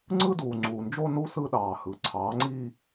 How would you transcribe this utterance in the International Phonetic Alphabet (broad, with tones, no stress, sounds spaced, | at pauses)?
ŋ͡ǀ ɯ˦ d uː˨ ŋ͡ǀ uː˨ n d͡ʒ o˦ n u˦ s ɯ˦ ɗ ɑː˨ h ɯ˨ ǀʰ ɑː˨˦ ŋ͡ǀ i˦